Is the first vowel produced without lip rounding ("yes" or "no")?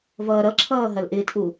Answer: yes